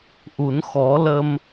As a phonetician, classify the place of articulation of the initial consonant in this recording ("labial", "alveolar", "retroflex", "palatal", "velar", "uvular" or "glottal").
glottal